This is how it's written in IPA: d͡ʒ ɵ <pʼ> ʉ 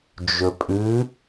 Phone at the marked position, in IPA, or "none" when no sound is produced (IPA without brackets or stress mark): pʼ